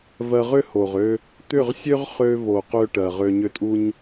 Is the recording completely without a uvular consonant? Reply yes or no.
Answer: no